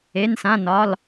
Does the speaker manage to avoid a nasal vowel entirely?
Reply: no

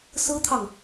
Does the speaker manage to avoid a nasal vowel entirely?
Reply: yes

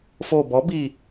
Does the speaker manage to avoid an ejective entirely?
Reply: yes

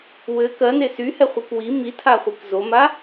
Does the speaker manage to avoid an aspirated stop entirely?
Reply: no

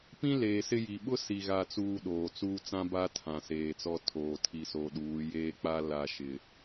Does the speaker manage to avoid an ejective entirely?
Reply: yes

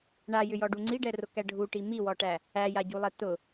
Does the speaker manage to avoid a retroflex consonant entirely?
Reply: no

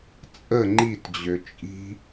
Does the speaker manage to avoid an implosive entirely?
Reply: yes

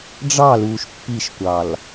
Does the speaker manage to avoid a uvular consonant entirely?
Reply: yes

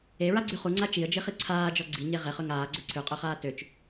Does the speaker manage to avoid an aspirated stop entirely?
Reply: no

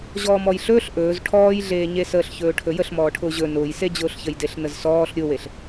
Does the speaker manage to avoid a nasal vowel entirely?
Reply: yes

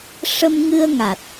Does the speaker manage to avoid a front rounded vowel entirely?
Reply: yes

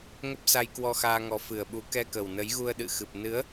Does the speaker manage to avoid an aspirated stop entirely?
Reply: yes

